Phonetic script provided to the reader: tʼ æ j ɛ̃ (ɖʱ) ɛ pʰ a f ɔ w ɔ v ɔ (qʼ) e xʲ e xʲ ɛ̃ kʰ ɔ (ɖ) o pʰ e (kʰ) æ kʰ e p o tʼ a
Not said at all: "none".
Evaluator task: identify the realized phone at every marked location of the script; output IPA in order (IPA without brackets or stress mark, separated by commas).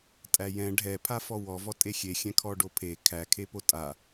ɖʱ, tʼ, ɖ, kʰ